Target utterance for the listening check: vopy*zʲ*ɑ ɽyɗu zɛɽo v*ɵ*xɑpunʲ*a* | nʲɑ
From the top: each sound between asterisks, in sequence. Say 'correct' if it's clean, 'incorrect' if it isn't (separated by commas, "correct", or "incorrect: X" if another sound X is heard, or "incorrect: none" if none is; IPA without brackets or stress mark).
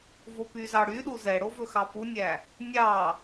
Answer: incorrect: z, correct, incorrect: æ